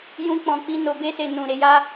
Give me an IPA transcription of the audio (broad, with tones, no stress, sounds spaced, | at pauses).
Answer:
j ũ˧ k͡p ɔ̃˨ k͡p i˧ n o˨ b e˧ s e˨ n ũ˨ ɾ e˧ j a˦